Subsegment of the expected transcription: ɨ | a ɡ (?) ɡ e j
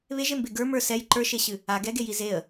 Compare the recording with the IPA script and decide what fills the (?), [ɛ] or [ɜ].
ɛ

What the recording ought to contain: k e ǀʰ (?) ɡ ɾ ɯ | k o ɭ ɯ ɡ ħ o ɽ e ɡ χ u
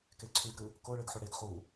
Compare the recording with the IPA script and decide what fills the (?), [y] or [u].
y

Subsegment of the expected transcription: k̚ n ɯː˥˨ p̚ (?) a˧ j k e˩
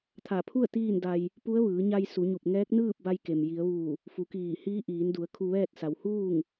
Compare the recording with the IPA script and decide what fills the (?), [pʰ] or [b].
b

